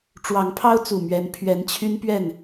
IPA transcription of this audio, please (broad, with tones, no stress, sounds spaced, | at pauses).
ʈ͡ʂ w ɑ˨˦ ŋ pʰ ɑ˦ ʊ̯ t͡s u˨˩ m ɥ ɛ˨˦ n pʰ ɥ ɛ˨˦ n t͡ɕʰ y˦ n p ɥ ɛ˥˨ n